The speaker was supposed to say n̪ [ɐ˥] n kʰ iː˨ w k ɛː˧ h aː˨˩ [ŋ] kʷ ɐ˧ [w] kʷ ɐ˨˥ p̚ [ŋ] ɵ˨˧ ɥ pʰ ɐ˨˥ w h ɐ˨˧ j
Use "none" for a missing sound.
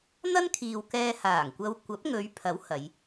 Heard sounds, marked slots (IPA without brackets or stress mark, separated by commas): ɐ˥, ŋ, w, ŋ